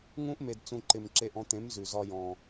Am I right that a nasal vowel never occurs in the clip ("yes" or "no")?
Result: no